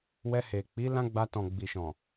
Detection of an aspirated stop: absent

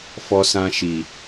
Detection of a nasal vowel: present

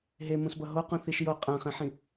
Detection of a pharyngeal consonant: present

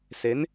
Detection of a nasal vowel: absent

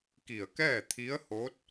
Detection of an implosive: absent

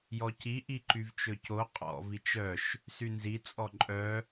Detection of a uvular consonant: present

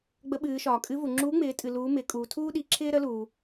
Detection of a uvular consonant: absent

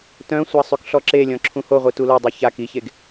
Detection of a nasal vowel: present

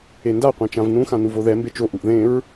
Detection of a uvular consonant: present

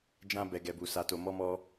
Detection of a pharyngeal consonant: absent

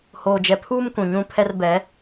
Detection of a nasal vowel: present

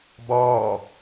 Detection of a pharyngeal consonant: absent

